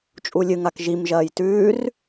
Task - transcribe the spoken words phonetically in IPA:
t͡ʃʼulʲɨŋak ʒimʒɐːj tʉːr

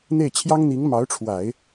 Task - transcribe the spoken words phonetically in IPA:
n̪e˥˩ɪ̯t͡ɕʰjɑ˥ŋn̪i˧˥ŋ mɑ˧˥ʊ̯ʈ͡ʂʰwa˨˩˦ɪ̯

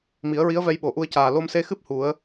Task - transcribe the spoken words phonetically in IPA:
mi˨˩˦ə̯ɹi˧˥ə̯vɛ˧jɓo˨˩˨ ʔu˧ə̯caː˨˩ lo˧mse˧xɨ˦˥p̚ hu˨˩˦ə̯

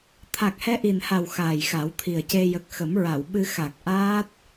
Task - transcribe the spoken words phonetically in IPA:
t̪ʰa˨˩k̚hɛ˧ʔi˨˩nha˨˩w xaː˨˩jxa˨˩˦wt̪ʰi˨˩ə̯ce˧ jə˨˩k̚xə˨˩˦mɹa˨˩˨wɓɨ˧ xa˨˩k̚ʔaː˦˥t̚

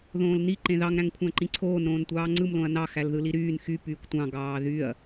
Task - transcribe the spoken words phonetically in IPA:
ðõːlni ǃẽðɑŋ ɾæ̃ŋkʷʰæ̃ǃĩǀʰoːn ɾõːntʷɑːŋ͡ǀɯm lõɐ̯nɑ xælðɯliɾyːn xy pyːkʷtʷɑ̃ ɡɑːðyɐ̯

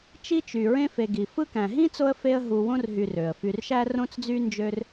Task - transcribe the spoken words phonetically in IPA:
t͡ʃi˦t͡ʃy˩ɹẽ˦ fe˨ɡi˩ fɯ˦kæ̃˩ɦĩ˥t͡so˦ə̯ fe˦ə̯ɦu˨ wõ˥rɦy˨r ø˩ə̯ fy˨rʃæ˥rõ˥t͡sd͡zy˥ nd͡ʒø˥r

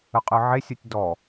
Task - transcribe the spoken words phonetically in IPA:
əqʼɯʕesʲɯtʲ dɔ

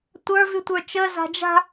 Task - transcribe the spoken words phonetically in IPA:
tʷə˞ vʉtʷə˞t͡ʃə za̤d͡ʒa̤

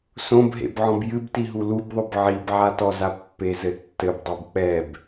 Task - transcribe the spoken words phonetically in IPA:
sõbɦḛb ʕɔ̃bjɨbti ɦulubðˤob ʕibʕatɔza pːezɘtːɘbdˤob k͡pɛb

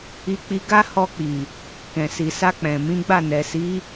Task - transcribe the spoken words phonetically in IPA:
i˧k͡pi˧ɡa˦ hɔ˧k͡pi˨ | kɛ̃˨si˨sa˧k͡pɛ̃˨ mĩ˨˦ɡ͡ba˦˨ nɛ˨si˨˦

